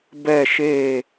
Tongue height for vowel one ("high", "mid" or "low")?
mid